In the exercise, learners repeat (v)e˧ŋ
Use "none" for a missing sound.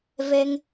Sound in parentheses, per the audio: v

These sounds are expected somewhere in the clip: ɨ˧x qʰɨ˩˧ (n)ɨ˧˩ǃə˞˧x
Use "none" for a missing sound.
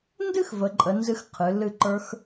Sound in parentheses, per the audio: l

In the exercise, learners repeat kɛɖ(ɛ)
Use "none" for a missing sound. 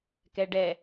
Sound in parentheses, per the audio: ɛ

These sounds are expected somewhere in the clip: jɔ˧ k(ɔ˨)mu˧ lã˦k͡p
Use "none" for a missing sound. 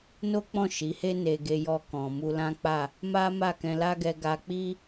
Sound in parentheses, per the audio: ɔ̃˨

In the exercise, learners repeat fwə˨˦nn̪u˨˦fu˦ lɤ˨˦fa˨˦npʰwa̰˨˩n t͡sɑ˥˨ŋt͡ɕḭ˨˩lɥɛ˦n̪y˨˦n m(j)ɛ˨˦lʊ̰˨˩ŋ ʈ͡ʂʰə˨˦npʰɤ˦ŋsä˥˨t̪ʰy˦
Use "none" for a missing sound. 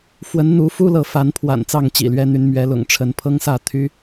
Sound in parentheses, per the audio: ɥ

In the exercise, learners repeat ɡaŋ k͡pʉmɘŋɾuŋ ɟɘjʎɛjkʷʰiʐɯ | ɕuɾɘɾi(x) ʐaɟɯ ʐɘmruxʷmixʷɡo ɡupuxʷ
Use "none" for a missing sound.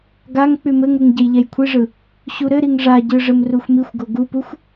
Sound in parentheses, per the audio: ŋ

